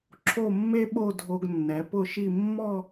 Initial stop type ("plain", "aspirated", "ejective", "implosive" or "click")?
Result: click